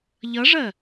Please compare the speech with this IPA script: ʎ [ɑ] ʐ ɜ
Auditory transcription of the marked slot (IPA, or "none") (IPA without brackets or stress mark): ʌ